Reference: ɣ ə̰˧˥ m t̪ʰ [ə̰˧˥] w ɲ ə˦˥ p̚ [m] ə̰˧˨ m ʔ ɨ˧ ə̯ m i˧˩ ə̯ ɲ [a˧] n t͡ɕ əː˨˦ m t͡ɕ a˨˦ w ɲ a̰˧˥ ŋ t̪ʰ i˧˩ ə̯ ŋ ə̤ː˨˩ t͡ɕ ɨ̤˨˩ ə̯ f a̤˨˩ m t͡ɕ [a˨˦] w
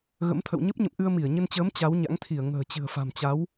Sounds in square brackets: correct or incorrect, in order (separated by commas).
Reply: incorrect, incorrect, incorrect, correct